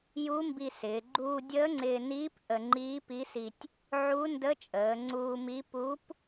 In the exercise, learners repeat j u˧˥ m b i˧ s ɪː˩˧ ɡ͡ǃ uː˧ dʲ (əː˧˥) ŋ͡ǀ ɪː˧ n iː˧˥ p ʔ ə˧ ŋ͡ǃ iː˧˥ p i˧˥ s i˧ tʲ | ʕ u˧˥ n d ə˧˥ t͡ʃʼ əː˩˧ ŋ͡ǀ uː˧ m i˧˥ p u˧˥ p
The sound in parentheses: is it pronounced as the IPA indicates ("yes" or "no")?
yes